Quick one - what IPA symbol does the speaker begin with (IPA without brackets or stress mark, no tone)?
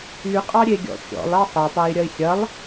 y